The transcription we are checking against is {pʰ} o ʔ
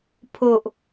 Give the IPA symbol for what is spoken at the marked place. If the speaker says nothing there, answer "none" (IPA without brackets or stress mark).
pʰ